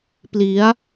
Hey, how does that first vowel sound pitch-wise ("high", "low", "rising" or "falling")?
rising